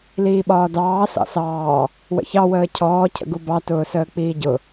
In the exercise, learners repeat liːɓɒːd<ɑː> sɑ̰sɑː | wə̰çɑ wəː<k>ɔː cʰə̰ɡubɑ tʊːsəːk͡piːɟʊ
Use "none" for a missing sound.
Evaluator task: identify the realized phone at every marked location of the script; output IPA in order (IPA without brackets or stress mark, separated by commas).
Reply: ɑː, cʰ